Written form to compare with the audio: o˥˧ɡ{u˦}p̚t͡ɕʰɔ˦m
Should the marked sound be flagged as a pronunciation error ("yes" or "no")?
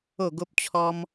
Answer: yes